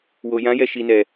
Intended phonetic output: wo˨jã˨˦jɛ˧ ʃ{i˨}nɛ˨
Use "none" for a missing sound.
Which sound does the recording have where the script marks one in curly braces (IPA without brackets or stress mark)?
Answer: i˨